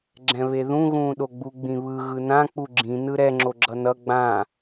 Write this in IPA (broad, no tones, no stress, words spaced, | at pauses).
ɡ͡ǁɛ̃βeðũ ɣũːɗoɡ͡bu ɡ͡bĩβɯ ɣɯnã k͡puɡ͡ǁĩ nɯɾɛ ŋ͡ǁoɡ͡ǁʌnʌ ɡ͡bã